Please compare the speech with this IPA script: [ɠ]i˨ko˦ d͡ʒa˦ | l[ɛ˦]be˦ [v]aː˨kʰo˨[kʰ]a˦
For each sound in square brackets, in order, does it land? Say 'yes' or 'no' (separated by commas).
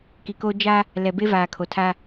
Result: no, no, yes, no